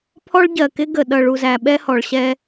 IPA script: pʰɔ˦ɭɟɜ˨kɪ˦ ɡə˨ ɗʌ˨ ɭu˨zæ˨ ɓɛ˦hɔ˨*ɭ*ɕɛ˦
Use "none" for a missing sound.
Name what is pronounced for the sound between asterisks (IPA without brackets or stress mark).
ɭ